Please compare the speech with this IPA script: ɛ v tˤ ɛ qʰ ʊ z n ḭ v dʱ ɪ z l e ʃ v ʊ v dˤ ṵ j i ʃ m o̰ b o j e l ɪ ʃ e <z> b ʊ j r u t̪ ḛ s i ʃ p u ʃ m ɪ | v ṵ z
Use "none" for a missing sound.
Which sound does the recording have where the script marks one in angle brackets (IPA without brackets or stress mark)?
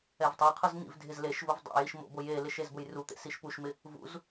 z